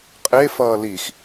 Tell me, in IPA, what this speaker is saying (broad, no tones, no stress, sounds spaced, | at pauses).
qʼ e f ʌː l i x